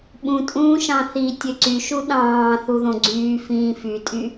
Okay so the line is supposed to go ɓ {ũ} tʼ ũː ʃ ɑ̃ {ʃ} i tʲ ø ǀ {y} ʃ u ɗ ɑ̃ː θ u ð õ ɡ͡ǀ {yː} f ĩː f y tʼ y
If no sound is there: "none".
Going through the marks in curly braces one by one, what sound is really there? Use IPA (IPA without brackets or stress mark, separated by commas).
ũ, θ, y, yː